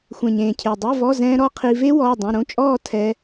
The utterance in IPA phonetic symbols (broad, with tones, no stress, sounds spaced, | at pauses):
xʷ ɛ̃˨˩ ɲ ẽː˨˩ cʰ e˨˩ dˤ e˧˥˧ v ɔ˧˥˧ z ɛ̃ː˧ ɾ ɔ˧ qʰ i˧ v e˦˥ w ɔː˧˥˧ dˤ õ˧˥˧ ɾ õ˧˥˧ t͡ʃʼ ɔː˥˧ tʰ ɛ˦˥